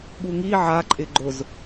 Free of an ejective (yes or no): no